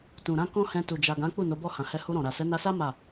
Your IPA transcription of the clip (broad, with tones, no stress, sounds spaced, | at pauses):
t ũ˨ ɾ ã˧ k ɔ̃˦ h ɛ̃˧ t u˨ d͡ʒ a˨ ɡ ã˨˦ k͡p u˦˨ n o˨˦ b ɔ˦˨ h ã˨ h ɛ˧ h u˧ ɾ ɔ̃˨ ɾ a˨ s ɛ˨˦ n a˧ s a˦ m a˦˨